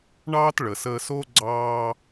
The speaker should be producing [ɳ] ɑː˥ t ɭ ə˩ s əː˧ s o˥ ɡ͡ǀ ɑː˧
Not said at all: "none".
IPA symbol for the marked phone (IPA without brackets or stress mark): ɳ